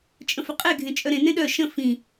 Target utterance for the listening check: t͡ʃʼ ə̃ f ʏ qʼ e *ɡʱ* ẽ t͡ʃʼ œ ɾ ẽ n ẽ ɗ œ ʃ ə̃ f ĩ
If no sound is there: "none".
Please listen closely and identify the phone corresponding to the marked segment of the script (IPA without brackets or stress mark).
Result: ɡʱ